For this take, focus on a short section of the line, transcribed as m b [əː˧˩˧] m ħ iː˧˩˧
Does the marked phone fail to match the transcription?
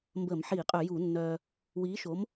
no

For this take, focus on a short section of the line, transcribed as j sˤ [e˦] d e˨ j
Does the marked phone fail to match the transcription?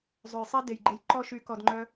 no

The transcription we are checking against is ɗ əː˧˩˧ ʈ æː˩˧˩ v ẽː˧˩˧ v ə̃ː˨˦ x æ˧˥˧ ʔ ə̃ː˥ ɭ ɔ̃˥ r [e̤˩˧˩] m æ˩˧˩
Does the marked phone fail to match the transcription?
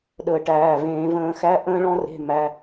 no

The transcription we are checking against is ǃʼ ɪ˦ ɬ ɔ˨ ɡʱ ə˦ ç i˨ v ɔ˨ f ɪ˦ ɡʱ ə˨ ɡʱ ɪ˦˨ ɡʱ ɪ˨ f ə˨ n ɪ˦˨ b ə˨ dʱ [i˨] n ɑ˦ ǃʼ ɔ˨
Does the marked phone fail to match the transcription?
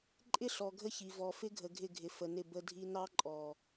no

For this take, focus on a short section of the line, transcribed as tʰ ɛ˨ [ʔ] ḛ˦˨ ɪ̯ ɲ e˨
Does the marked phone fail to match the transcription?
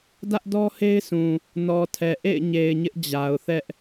no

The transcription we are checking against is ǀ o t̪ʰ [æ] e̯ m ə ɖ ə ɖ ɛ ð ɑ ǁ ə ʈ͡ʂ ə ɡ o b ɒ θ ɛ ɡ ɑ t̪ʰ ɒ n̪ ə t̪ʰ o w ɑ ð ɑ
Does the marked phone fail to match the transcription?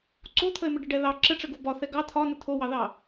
yes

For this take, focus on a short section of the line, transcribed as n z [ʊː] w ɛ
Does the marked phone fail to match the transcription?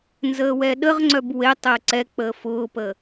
yes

